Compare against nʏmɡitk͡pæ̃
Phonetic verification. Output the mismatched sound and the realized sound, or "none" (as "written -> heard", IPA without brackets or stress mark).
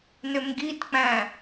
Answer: none